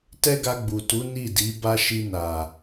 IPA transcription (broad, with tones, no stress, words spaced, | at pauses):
tɛ˦ɡa˧ɡ͡bu˨tu˨˦ ni˦˨di˨˦ ba˧ ʃi˧na˨